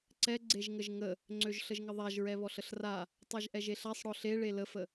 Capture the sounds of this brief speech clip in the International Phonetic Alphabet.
ǀɛ ɡ͡ǀeʒŋəʒŋə | ŋ͡ǀøʒɬəʒŋəðˤaʒ ɹɛβɔɬəɬra | tˤaʒʔɛʒeɬasˤ ɽɔɬe ɭeləfə

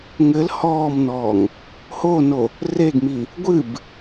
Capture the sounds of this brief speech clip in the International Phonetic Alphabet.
ŋɘl hɔːmnɔːŋ | hono | reɡmi | ɡʷɨb

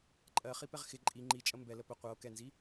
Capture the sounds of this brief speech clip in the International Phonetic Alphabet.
ǃʼɜχipɛʁ xɪ ǃʼi ŋ͡ǃit͡ʃʼə mbɛlə pə qʷɤo̯ kɛnzi

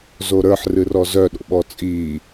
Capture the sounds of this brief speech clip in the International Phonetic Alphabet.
zoɾə˞ħ rɨrɔzœ ɗo̰ɓɔt͡sʼiː

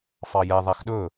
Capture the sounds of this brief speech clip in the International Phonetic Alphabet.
fɑjɛ ðˤæxɗɵ

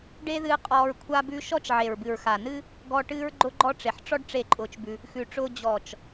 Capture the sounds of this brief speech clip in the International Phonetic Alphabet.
ɖe˦ðɨː˧ qʼɔː˧ɹkʷʰa˦bʉ˦ ʃɔ˦t͡ʃʕe˨ɹbɨ˨ɹ xa˨nɨ˦ | ɡɔ˧ ʈɨː˦ɹɡ͡ǃʊ˦ɡ͡ǃɔ˦ ʈ͡ʂe˨ħʈ͡ʂɔ˦ɖ ʈ͡ʂe˦˨ǃʼʊː˧t͡ʃbʉ˧ | xʉ˨ʈ͡ʂʊː˧ d͡ʑɔː˨t͡ʃ

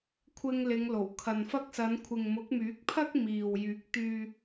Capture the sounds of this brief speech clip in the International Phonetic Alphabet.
kʷʰɪ˧ŋlɪ˨˧ŋlo˨˩wkʰɐ˨n fɐ˧k̚sɐ˨˧n kʷʰɪ˨ŋmʊ˨˥k̚myː˨˥k̚pʰɐ˥k̚ miː˨w jyː˨˥k̚ t̪yː˧

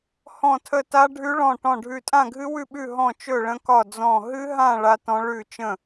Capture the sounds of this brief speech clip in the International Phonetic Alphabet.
hɔ̃˥˧tʰə˥˧ ta˦˥ɖʱʉ˦˥ɭɔ̃˥˧ ʈɔ̃˥˧ɖʱʉ˥˧ tʼã˥˧ɡʱɨ˦˥wʉ˥˧ɓʉ˥˧ ɦɔ̃˥˧t͡ʃɵ˥˧ɭə̃˦˥kɒ˥˧ d͡zɔ̃˥˧ ɦɨ˦˥ɦã˥˧ ɭa˦˥tɔ̃˦˥ ɭʉ˥˧t͡ʃə̃˥˧

